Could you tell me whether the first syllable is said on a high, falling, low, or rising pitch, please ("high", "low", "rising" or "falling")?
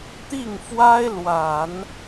falling